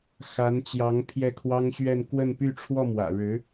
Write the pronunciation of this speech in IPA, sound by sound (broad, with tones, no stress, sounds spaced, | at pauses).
x a˧˥ n t͡ɕ j ɑ˧˥ ŋ pʰ j ɛ˥˩ kʰ w ɑ˥ ŋ ɕ ɥ ɛ˥˧ n k w ə˥˧ n p y˥˧ ʈ͡ʂʰ w ɔ˥˩ m w ä̰˨˩ ɻ ɻ̩˧˥